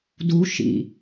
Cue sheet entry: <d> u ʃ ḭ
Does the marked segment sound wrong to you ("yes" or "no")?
no